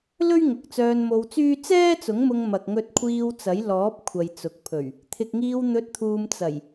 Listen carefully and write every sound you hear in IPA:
l ɵ˥ ɥ ŋ ʊ˨ k̚ t͡s œː˧ n m o˧ w t͡s yː˥ t͡s ɛː˥ t͡s ʊ˨˥ ŋ m ʊ˧ ŋ m ɐ˨ k̚ ŋ ɵ˧ t̚ kʷʰ iː˧ w t͡s ɐ˨˥ j l ɔː˨˥ p̚ kʷʰ ɐ˨ j t͡s ʊ˨ k̚ pʰ ɵ˨˩ ɥ | t̪ʰ ɪ˨ k̚ ŋ iː˧ w n̪ ɵ˨˥ t̚ t̪ʰ uː˨ m t͡s ɐ˨˩ j

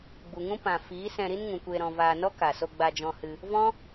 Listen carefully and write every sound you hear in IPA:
ɡ͡b u˨ ŋ ũ˦ p ã˨ f iː˨˦ s ɛ̃˧ ɾ i˦ n ŋ ũ˨ kʷ eː˧ ɾ ɔ̃˧ v aː˧ n ɔ˦ k a˨ s o˧ ɡ͡b a˧ d͡ʒ ɔ̃˧ h ɨ˧ | v ɔ̃˦

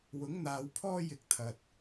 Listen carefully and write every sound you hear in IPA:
w ʊ˨˥ ŋ n̪ aː˨˧ w pʰ ɔː˥ j ɪ˧ k̚ t̪ʰ ɐ˧ t̚

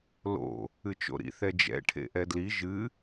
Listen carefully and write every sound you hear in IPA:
l o̰ | ɨ t͡ʃ o̰ ɾ ḭ θ ɛ d͡ʒ ɛ̰ ʈʰ ḛ ʔ ɛ d l i ʒ ɨ

